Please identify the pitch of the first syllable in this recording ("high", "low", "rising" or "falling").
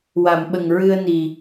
low